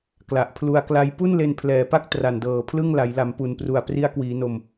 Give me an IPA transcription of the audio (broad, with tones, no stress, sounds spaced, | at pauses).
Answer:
k l a˨˩ ʔ pʰ l u˧ a̯ k l a˦˥ j p u˥˩ n l e˧ n pʰ l ɛː˩˦ p a˥˩ k̚ t r a˨˩ n d ɤː˨˩ pʰ l ɯ˥˩ ŋ l a˩˦ j l a˩˦ m p u˨˩ n p r u˨˩ a̯ p r i˦˥ a̯ k w iː˩˦ n o˨˩ m